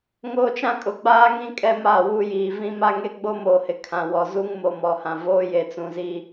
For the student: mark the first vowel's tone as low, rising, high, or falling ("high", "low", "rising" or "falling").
high